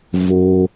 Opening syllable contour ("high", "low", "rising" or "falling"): high